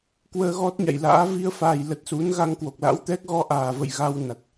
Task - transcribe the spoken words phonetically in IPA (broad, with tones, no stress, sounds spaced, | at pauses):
k w əː˧ ɣ ɔ˦˥ t̚ ɲ a̰˧˨ j l a̰ː˧˥ v i˧ ə̯ f aː˨˩ j l ə˨˩ t̚ s u˨˦ n ɣ a˧ ŋ k w o˨˩ k̚ l a̰˧˥ w t̪ ɛ˦˥ k̚ ɣ ɔ˧ ʔ aː˨˩ v ə̰˧˨ j ɣ a˧ w n a˨˩ t̚